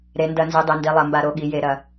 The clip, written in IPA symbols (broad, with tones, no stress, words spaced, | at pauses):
ɾe˩˧ndɐ˧˩˧nzi˩˧ dˤe˩˧ndi˩˧lˠɐ˧˩˧mba˧˩˧ ɾo˩˧ɠi˩˧je˧˩˧ ɾɐ˧˩˧